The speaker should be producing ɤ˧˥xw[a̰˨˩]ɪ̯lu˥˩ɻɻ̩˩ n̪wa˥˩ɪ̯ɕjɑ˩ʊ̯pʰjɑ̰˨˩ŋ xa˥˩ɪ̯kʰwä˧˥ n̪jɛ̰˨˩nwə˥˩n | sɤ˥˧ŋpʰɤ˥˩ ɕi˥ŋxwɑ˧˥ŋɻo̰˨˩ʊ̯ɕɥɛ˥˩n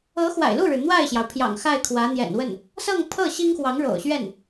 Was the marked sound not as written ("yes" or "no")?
no